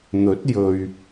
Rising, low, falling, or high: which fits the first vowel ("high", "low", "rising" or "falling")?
rising